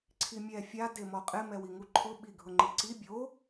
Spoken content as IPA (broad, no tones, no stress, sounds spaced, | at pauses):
ǀʰ i mʲ ɛ fʲ a d e m ɔ qʼ ɪ m ɛ w i ŋ u ǃʰ ʊ ɓ i ɡʱ ʊ ŋ͡ǃ i ǀ i bʲ o